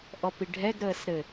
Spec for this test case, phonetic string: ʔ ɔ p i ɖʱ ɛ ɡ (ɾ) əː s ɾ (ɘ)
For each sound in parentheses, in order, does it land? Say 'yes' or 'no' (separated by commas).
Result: yes, yes